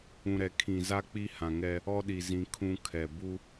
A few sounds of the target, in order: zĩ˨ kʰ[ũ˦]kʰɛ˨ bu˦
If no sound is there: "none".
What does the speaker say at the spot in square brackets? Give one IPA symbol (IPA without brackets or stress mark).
ũ˦